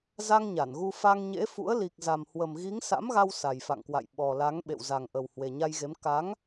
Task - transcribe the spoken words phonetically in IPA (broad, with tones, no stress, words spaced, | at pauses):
za˧ŋ ɲa˧˩nɣu˧ fa˧ŋɲḛ˧˥fṵ˧˥ə̯ li˨˩k̚ za˨˩mhwə˨˩mɣi˨˦ŋ sa̰˧˥mɣa˧w sa˨˩jfa̰˧˨ŋkwa̰˧˨j ɓɔ˨˩la˨˦ŋ ɓḛ˧˨wza˨˩ŋʔə˨˩w hwe˨˩ɲa˧jɣe˨˦m ka˨˦ŋ